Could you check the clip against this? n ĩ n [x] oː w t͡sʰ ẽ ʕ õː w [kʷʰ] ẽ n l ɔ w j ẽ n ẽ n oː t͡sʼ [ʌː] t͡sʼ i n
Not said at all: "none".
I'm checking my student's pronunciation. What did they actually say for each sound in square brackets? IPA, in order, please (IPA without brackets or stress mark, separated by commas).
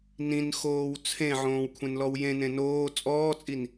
x, kʷʰ, ɔː